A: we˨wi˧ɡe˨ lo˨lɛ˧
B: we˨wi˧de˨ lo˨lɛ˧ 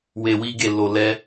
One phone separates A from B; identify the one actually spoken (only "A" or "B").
A